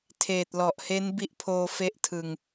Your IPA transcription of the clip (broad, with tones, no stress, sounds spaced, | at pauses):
tʰ eː˨˩ t̚ l ɔ˨˩ ʔ h e˦˥ n b i˦˥ ʔ pʰ oː˧ f e˥˩ ʔ tʰ ɯ˧ ŋ